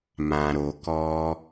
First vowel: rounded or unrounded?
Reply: unrounded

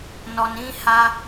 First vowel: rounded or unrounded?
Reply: rounded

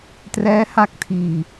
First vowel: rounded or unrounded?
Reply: unrounded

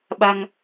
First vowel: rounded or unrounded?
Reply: unrounded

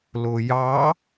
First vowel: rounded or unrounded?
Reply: rounded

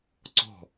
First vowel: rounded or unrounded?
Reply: rounded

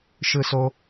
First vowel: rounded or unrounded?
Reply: unrounded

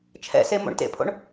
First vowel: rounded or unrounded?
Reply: unrounded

